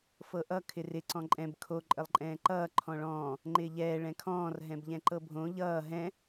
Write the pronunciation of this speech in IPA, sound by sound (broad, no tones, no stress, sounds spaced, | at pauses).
f ɤ ʔ ʌ kʰ ɪ r ɪ ǀ ɔ̃ ǃʼ ɛ̃ b kʰ o ǃʼ ə lˠ ǃʼ ɛ̃ː ǃ ʌː ǃʰ ɔ̃ ɭ ɔ̃ː | ŋ͡ǃ ɪː ʎ ɛː ɭ ɛ̃ kʰ ɔ̃ː r ɦ ɛ̃ b ʎ ɛ̃ ǃ ɤ bʱ õ ʎ ʌː ɦ ɛ̃